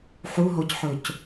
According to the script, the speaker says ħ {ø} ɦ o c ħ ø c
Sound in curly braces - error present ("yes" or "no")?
yes